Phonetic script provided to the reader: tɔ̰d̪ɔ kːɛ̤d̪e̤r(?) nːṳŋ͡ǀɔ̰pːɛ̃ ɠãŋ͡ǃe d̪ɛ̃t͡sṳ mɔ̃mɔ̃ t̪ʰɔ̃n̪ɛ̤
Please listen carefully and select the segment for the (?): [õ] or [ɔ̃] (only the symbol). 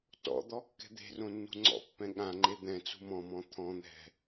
õ